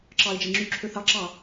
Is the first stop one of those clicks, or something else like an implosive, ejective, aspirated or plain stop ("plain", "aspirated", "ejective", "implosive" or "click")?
click